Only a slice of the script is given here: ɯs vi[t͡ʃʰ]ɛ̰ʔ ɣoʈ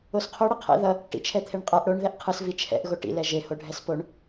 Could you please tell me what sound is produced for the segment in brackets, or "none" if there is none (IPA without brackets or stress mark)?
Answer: t͡ʃʰ